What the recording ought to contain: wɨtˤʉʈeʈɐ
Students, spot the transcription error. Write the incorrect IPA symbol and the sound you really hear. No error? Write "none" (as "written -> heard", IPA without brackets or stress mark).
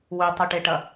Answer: ɨ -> ʉ